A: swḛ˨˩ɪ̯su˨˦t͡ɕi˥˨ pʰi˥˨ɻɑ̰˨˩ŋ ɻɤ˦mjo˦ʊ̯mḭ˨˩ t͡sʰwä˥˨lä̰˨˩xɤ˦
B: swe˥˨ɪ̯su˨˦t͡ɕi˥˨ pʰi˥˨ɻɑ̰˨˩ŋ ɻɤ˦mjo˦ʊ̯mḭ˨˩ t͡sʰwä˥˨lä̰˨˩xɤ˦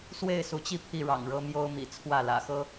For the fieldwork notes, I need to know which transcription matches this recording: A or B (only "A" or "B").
B